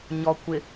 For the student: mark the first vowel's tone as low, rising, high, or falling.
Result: low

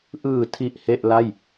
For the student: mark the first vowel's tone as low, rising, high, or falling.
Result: low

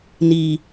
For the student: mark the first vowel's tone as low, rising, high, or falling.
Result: low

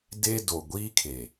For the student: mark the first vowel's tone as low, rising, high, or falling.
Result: high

